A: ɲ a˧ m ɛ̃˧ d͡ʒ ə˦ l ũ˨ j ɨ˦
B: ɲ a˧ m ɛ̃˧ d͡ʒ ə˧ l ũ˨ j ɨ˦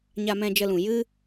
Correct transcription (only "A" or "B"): B